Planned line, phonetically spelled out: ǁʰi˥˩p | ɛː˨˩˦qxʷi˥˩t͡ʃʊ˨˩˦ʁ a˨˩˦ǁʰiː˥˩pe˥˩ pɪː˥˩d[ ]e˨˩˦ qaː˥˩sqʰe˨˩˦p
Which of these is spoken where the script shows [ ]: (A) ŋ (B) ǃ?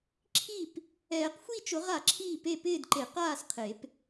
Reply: B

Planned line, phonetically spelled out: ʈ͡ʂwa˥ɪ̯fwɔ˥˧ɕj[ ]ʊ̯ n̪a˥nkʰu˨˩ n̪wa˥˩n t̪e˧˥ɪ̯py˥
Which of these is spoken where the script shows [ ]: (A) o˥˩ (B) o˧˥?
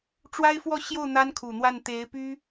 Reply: A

